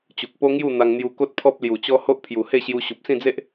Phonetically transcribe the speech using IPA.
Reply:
t͡ɕu˨k̚po˦ŋju˥˧ n̪a˧ŋn̪ju˧ ko˦t̚pʰɔ˦p̚lju˨˩t͡ɕɔ˦ ho˦ʔpʰju˨˩he˥˧ɕju˧ ɕu˨p̚sĩ˥˧d͡ze˦ʔ

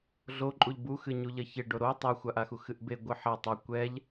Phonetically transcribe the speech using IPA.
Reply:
ɮoǃʼuʎ buxɨɲu ʎɐçeɖo ɾo tˤɛxʷaʔaxu xɨʔbe ɡʷɨħɐ tˤa kʷɛʎ

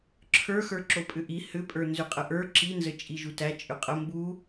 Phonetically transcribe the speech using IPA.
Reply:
ǁʰə˞xə˞ ǁopʼʏʔi hʏpʼə˞ nzʏqʼəʔə˞ ǁinzə t͡ʃʼiʒutæ t͡ʃʼʏqʼə mbu

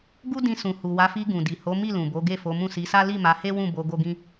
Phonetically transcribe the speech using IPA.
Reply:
ɡu˦dĩ˧sũ˨ hu˨wa˨˦fi˧ ɡũ˨di˨ ho˨˦ mi˦˨lũ˨bo˨˦ ɡe˦˨fo˨˦mũ˦˨ si˨˦sa˦ li˦˨ma˨˦he˦ wũ˦˨bo˧ ɡo˦ɡĩ˦

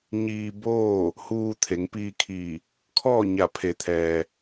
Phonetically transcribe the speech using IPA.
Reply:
ɲiː˧ boː˥˨ | huː˧t̪ʰe˩˧ŋpiː˧kʰiː˧˩ | kʰɔː˥˨ɲa˧˩pʰe˩˧t̪ʰɛː˩

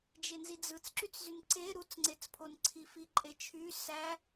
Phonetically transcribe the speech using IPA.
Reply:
d͡ʒenzid͡zɯt͡s ǁyt͡szynǀe ɾut͡sŋ͡ǀet͡spʰon ǀʰifiǃʼet͡ʃʰy sæ

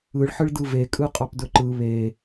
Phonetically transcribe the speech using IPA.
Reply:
ɯɭħɯɭdɯ vekʼɯqʼɑpdɵ ǃɯ βe

